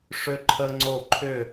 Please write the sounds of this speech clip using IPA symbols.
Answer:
ʂ ʏ˦ ǃʰ ə˦ ŋ͡ǀ o˦˨ ǃʰ ʏ˦˨

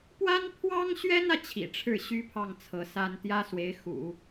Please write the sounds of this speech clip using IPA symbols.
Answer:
p w a˥ n pʰ w ɑ˥ ŋ ɕ ɥ ɛ˥ n ä˨ t͡ɕʰ ḭ˨˩ ʈ͡ʂʰ ɻ̩˥˩ ɕ y˥ pʰ ɑ˥˩ ŋ t͡sʰ ɤ˧˥ s a˥ n t̪ j ä˥ s w e˧˥ ɪ̯ x ṵ˨˩˦

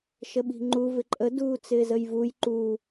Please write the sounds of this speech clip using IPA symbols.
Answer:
ʃ ə ɓ i̤ ŋ͡ǃ u v ɪ ǃʼ ə d uː t͡s ɪː z ə j v u j ǃ uː

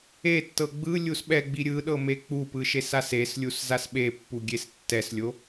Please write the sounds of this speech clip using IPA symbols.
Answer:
e tː ɤ ɡ͡b ɯ lʲ u s ɓ ɛ ɡ͡b i ɾʲ ɯ ɗ ɤ m e k͡p u p ɯ ʃ e s a s e s lʲ u s z a s ɓ e pː u ɡʲ e s tː ɛ s lʲ o

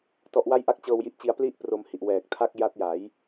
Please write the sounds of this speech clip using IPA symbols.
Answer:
t ɔ˦˥ ʔ w a˥˩ j ʔ a˥˩ k̚ t͡ɕ ɤː˧ w j i˦˥ ʔ t͡ɕ i˧ a̯ p l i˥˩ ʔ p r o˧ m h i˨˩ ʔ w ɛː˨˩ k̚ tʰ a˥˩ k̚ j a˦˥ t̚ j a˩˦ j

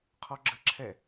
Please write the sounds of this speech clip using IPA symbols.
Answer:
qʰ ɔ ɡ͡ǁ ə ǁʰ ɛ

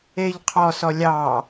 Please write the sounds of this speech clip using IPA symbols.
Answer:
e ʎ qʰ ɔ s ɔ lʲ ɑ

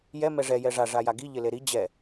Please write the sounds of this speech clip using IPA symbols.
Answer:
j ɛ m ɛ ʐ ɛ j ɛ ʐ a ʐ a j a ɡ i ʎ ɪ l e ɾ i d͡ʑ ɛ

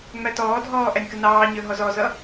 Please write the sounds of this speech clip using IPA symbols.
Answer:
ŋ͡m æ t ɔː dʱ ɔː ʔ æ nʲ k ə n ɑː ɲ ə˞ ɦ ɔ z ɔ z ʌ

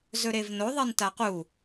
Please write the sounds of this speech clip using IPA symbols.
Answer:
z ɵ ɾ e v n o ðˤ i n t a q u

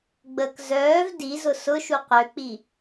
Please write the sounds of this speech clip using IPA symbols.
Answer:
ɡ͡b ə k z œː v d i z ʊ s ʊ ʃ u q ø k͡p i

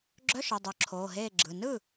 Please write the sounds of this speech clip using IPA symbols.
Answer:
ɡ͡ǁ œ˧˥˧ ʃ œ˩˧˩ dˤ œ˨˩˦ ǁʰ oː˩˧˩ ɦ eː˥˩ ɡ͡ǁ ɯ˩˧˩ n ɯ˥˩

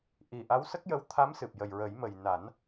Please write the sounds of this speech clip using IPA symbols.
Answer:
ʔ i˨˩ ʔ a˧˥ w s ə˦˥ k̚ j ə˧˥ w t̪ʰ a˧˥ m s ɨ˨˩ p̚ j ə˨˩ j ɹ ə˨˩˦ j m ə˨˩ j n a˨˩˦ n

